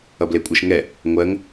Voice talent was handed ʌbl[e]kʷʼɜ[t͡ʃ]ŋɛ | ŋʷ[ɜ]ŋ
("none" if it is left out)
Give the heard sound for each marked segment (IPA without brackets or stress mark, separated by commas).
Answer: e, ʃ, ɜ